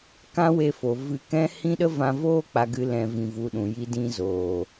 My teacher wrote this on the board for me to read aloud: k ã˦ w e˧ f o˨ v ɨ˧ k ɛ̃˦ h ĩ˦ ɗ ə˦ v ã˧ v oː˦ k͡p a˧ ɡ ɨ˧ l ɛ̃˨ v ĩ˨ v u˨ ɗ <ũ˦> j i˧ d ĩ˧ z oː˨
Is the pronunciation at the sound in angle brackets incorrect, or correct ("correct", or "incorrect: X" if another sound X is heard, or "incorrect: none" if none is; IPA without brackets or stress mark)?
incorrect: ũ˨